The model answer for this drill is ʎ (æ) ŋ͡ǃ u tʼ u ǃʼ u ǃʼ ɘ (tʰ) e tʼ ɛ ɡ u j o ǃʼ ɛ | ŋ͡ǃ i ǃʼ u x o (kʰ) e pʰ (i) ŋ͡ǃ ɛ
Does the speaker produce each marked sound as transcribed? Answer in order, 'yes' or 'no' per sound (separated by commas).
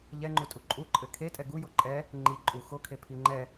no, no, yes, yes